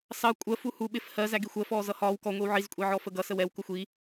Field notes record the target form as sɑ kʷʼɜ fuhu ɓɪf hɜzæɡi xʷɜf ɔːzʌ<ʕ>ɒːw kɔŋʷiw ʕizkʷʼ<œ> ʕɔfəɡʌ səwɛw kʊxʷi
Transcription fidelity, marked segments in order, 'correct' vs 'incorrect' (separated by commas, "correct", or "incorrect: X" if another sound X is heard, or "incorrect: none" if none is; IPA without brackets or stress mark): incorrect: h, incorrect: ɛ